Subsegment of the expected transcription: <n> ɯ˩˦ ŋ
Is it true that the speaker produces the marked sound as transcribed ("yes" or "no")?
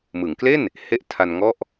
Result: no